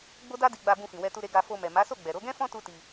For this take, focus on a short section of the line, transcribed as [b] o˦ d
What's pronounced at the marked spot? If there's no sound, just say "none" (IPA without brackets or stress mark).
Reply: ɡ͡b